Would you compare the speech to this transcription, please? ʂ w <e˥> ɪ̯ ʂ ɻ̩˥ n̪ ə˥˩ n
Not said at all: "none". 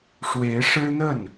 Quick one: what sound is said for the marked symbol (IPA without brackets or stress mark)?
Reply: e˧˥